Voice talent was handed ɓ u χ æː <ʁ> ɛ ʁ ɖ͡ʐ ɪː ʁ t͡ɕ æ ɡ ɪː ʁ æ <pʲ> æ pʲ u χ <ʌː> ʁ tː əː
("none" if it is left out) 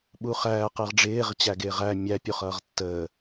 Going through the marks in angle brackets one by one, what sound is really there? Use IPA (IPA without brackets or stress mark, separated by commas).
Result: q, mʲ, ʌː